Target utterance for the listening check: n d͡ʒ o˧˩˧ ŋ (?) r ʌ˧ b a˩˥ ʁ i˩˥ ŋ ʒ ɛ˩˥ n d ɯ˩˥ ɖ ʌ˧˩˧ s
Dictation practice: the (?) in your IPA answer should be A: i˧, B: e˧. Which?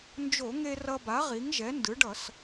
B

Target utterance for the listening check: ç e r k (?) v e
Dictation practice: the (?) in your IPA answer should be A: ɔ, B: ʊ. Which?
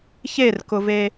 B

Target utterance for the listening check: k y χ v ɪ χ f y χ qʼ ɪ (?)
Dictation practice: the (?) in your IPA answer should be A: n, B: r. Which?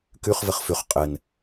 A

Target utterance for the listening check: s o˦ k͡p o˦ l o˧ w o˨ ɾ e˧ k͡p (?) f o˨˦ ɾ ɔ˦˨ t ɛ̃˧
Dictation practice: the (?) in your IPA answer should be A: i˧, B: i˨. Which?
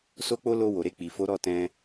B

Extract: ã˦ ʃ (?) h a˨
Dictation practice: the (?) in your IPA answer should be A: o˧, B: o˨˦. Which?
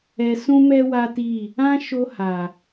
A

